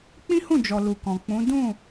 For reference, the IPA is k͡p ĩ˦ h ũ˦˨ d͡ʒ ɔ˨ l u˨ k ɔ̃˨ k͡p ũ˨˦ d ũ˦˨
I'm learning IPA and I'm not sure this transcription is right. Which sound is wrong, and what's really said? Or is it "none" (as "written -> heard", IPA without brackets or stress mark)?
none